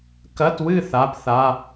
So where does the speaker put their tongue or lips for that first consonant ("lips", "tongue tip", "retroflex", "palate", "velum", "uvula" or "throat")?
velum